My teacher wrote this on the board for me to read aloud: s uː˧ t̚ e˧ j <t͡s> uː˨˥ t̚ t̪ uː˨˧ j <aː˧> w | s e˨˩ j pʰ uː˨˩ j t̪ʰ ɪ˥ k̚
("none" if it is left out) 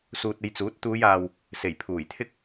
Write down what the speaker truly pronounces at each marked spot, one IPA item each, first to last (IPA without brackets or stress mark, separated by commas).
t͡s, aː˨